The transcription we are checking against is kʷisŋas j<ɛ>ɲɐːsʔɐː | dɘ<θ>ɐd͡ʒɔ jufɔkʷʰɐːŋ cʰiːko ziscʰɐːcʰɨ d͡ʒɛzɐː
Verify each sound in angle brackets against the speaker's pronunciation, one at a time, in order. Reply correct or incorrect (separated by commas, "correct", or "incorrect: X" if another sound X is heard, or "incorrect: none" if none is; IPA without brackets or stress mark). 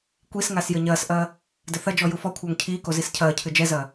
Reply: incorrect: ɘ, correct